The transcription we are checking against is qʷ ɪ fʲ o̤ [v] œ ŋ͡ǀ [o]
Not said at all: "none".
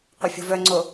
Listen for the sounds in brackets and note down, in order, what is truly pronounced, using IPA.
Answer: v, o

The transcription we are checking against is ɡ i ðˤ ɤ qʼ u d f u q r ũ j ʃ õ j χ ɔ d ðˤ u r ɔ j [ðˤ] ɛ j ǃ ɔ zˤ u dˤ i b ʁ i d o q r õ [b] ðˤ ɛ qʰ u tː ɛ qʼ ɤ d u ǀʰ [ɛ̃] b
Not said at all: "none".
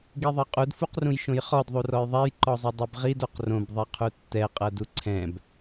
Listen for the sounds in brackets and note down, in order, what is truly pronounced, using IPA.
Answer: ðˤ, b, ɛ̃

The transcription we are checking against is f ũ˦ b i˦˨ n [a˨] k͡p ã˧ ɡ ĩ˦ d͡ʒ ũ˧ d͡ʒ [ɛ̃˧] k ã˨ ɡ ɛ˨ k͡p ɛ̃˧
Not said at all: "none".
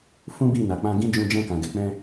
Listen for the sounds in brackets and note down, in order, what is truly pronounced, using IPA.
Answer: a˨, ɛ̃˧

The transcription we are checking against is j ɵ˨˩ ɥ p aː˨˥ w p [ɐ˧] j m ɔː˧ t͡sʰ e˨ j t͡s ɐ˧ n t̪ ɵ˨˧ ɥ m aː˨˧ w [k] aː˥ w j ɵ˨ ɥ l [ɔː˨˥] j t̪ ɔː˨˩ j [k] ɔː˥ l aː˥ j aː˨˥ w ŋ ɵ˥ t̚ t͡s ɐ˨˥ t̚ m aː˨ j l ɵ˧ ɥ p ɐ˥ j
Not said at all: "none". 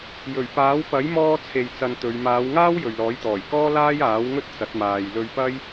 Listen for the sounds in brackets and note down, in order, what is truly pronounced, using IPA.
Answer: ɐ˨˥, ŋ, ɔː˨˥, k

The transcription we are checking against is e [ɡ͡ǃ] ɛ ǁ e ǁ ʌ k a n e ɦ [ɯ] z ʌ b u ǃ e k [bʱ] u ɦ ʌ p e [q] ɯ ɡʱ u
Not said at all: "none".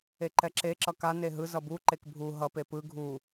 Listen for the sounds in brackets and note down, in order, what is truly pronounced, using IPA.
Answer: ǃ, ɯ, bʱ, p

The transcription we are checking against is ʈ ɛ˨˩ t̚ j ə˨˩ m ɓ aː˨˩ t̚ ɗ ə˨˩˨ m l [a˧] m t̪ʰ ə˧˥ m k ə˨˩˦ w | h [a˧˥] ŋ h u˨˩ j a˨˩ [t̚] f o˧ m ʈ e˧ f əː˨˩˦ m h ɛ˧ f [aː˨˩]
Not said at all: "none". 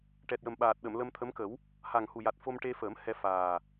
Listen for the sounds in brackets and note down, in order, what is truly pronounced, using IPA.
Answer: ə˧, a˨˩, t̚, aː˨˩

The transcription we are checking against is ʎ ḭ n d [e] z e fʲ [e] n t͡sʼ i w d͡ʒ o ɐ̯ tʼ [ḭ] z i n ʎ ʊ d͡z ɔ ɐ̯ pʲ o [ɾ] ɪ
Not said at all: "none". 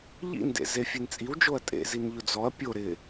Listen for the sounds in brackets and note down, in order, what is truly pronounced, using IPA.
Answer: ḛ, e, ḛ, ɾ

